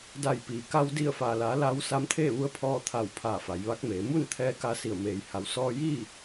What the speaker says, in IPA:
d a˧˩ j p iː˩ k a˧ w d i˧˩ ə̯ f aː˩ l aː˩˧ l aː˧˥ w s a˧˥ m t̪ʰ eː˥˨ ʋ u˧˥ ə̯ pʰ ɔː˧ t̪ʰ a˧˩ w pʰ aː˧˩ f a˩˧ j ʋ a˧˥ k̚ m eː˩˧ m u˥˨ n t̪ʰ ɛː˧ k a˧ s i˧˩ ə̯ m eː˩ j h a˩˧ w s ɔː˧ j iː˥˨

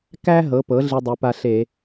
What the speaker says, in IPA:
k æ˧ ɦ ɤ˩˥ p ɤ˩˥ ɮ i˧ dˤ i˩˧ p a˧ ɬ e˧˩˧

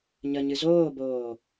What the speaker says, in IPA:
ɲ ə ɲ ɨ z oː b oː

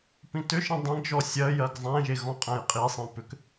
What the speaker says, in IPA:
p ĩ t ʏ ʃ ĩ dˤ ẽ ɡ ʒ ɔ sʲ ɜ j ɜ ɡ zˤ æ̃ ʒ e ɣ ɔ̃ qʼ æ̃ j qʼ i sˤ ĩ p ʏ k

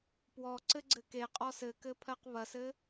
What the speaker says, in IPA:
p w ɔ ǀ ɘ ɡ͡ǀ ɘ k e qʼ ɔ s ɘ k ɘ pʰ ɜ q β ɐ s ɘ

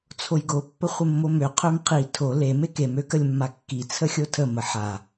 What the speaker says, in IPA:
t͡sʰ o j ɡ o pː ə χʷ ə mː o m ø qʰ ø m qʰ i tʰ o l e m e k e m ø k ə lʲ mː a kː i t͡sʰ ə xʲ o tʰ ə m ə ħ a

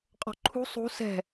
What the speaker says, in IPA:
qʼ ɔ̤ ǃʰ ṳ sˤ ṳ s ɛ̤

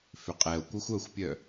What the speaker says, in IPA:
f ʏ qʼ ɛ o̯ kʷ ɐ xʷ œ xʷ pʲ œ

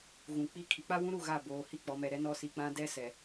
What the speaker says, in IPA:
ɣ ũ˨ k͡p i˦ kʰ i˨ k͡p a˦ w ũ˦ ɾ u˦˨ ɣ a˦˨ b oː˨ h i˦ k͡p ɔ˨ m ɛ˨ ɾ ɛ˦ n ɔ˦ s i˨ k͡p ã˦ d ɛ˦ s ɛ˨

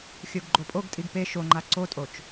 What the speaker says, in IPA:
xʲ o ɡ ɡ͡ǃ o pʼ o ɡ tʼ i ɡ p e ʃ o ŋ͡ǃ a ǀ o tʼ o t͡ʃ

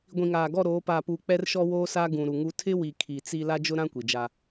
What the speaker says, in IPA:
ɡʷ ĩ˨ ŋ aː˨ ɡ ɔ˦˨ ɾ oː˨˦ p aː˨ p uː˨ k͡p ɛ˦ r ʃ ɔ˦ w oː˦ s aː˦ ɡ ũ˨ ɾ u˨ ŋ u˦ tʰ ɪ˦ w i˨ kʰ i˨ t͡s i˦ l a˦ d͡ʒ ʊ˦ ɾ ã˦ kʷ i˨ d͡ʒ a˦

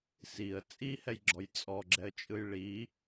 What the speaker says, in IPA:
s i ə̯ t͡sʼ i h ɛ j ɡ͡ǁ ɔ j t͡sʼ ɔ ɡ͡ǁ ɛ ə̯ t͡ʃʼ ɯ j ɭ i

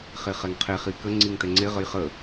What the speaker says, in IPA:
χ e χ ɛ ŋ qʰ e χ i k ə ŋ͡ǀ i ŋ t ɛ ŋ͡ǀ e ʁ ə j χ ə

